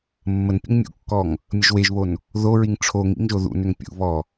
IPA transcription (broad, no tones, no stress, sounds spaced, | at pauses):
mː ə n pʲ ə̰ ŋ mʲ ṵ kː ɔ ŋ | mʲ ə ʒ w e ʒ β o n | ð o ɹ i ŋ ʈ͡ʂʰ o ŋ ḭ ŋ ʒ o ð ṵ n ʏ ŋ pʲ ṵ β ɔ